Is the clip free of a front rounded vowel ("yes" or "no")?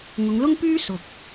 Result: no